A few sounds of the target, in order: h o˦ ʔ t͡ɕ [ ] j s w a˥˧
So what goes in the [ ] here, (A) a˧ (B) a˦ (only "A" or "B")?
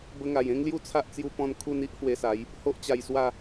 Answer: A